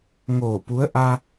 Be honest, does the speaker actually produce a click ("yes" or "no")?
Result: no